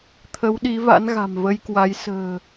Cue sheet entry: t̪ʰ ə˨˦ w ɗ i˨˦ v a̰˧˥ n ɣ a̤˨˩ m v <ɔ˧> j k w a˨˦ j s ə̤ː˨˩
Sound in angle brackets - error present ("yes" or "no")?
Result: yes